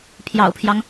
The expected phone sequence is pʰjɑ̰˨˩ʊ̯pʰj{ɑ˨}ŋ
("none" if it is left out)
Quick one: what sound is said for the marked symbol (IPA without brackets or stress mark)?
ɑ˦